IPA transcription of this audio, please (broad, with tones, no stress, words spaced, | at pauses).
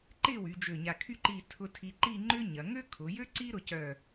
ǃɪ˥˧wy˩˧ d͡ʒø˧˩ɲa˧˩kʰy˥˧ ǃi˧˩ tʰʊ˧ tʰi˧ǃi˥˧ŋ͡ǃʏ˥ɲɐ˩˧ ŋø˥kʰʊ˩˧jø˥ ǀi˥ɾʊ˧cœ˧˩